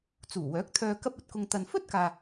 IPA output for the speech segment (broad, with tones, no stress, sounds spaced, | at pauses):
t͡s uː˨˩ w œː˨˥ k̚ t̪ʰ œː˧ k ɐ˥ p̚ ɐ˨ t̚ k ʊ˧ ŋ t̪ ɐ˨ n f ɵ˥ t̚ k aː˨